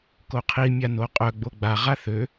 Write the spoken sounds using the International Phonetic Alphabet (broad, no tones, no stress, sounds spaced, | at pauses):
k o qʰ i mʲ a n o qʼ œ ɡ͡b o ɡ͡b a ʁ a θ ø